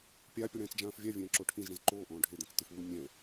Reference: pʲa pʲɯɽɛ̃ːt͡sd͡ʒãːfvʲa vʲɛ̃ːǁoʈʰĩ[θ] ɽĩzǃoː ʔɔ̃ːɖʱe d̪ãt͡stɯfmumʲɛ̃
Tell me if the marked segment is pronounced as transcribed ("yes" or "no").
no